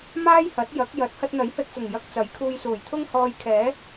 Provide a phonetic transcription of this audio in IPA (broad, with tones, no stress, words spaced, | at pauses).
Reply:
maː˥jhɐ˨˥t̚ jɐ˨˥k̚jɐ˨˥t̚ hɐ˧t̚n̪ɐ˨˥jhɵ˧t̚fʊ˨˩ŋ jɐ˧k̚t͡sɐ˨˥jkʰuː˧jsuː˨˩j t̪ʰʊ˥ŋhɔː˧jkʰɛː˨˥